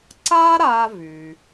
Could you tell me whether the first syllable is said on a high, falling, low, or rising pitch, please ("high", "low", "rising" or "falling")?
high